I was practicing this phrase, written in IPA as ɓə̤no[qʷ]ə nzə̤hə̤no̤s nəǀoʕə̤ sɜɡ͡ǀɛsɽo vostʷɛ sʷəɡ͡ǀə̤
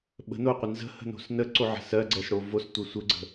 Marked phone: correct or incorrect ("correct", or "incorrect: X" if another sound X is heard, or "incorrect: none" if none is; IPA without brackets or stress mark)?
correct